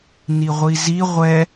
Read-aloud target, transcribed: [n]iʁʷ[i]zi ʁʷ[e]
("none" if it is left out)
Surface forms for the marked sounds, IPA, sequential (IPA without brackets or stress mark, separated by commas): n, i, ɛ